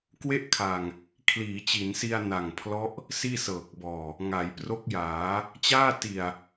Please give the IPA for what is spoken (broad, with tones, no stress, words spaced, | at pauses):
kwe˥˩ʔkʰa˨˩ŋ | kʰliː˩˦t͡ɕi˩˦nsi˧a̯ na˨˩ŋpʰlɔ˦˥ʔ | siː˥˩sɤː˨˩k̚bɔː˨˩ | ŋa˩˦jpro˦˥k̚jaː˩˦ | t͡ɕaː˥˩ti˨˩a̯